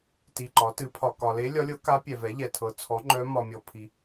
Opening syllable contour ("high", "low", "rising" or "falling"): low